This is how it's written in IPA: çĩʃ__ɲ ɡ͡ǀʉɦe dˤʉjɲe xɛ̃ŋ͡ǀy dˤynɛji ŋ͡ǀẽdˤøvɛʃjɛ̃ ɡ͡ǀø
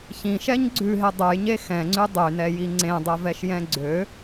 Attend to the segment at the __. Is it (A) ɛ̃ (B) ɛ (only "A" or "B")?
B